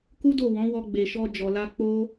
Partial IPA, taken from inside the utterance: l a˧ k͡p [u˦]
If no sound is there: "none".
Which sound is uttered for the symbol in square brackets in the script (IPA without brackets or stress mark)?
o˦